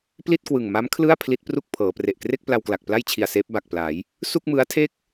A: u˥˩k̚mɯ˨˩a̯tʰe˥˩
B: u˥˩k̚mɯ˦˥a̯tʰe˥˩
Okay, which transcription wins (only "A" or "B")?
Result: B